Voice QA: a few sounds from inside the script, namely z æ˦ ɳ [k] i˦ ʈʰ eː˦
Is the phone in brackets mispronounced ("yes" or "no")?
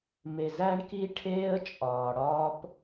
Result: no